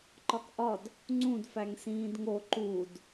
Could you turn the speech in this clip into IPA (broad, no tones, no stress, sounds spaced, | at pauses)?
ǃ ɒ k ʔ ɒ d | ŋ͡ǀ ũ d f æ ŋ s ĩː d ŋ o ǃ u d